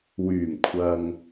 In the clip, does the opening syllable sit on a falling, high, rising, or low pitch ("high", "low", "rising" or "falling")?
low